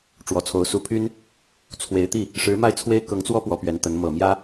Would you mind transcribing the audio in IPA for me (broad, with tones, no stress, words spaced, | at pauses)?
ʈ͡ʂwɔ˨˩t͡sʰo˧˥ʊ̯ su˧˥pʰy˥n | t͡sʰwe˧˥ɪ̯t̪i˥˩ | ʂɻ̩˧˥ma˥˩ɪ̯t͡sʰwe˥ɪ̯ kɤ˧˥ŋt͡swɔ˥ pwɔ˧˥pɥɛ˧˥nt̪ə˧˥n mɤ˨˩mjä˥